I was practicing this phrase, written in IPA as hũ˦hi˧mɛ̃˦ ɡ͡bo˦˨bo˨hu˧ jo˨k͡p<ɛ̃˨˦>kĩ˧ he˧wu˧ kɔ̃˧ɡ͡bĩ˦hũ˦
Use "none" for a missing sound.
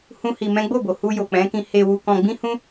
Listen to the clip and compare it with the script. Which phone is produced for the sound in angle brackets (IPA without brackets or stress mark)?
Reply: ɛ̃˨˦